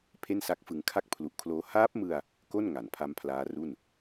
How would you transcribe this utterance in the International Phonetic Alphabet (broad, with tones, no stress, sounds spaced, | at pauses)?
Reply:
pʰ e˥˩ n s a˦˥ k̚ f ɯ˧ ŋ kʰ a˥˩ k̚ pʰ l u˨˩ ʔ kʰ l oː˦˥ h aː˦˥ p̚ m ɯ˧ a̯ | k o˥˩ n ŋ a˩˦ n pʰ a˦˥ m pʰ l aː˦˥ r u˥˩ n